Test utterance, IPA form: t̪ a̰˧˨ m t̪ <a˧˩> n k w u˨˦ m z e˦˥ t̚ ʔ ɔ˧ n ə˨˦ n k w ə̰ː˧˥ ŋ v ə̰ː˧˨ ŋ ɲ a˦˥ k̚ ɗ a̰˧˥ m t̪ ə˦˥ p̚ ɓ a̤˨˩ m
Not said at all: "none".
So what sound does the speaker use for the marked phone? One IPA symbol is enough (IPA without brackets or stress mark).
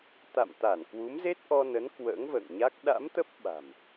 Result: a˧˩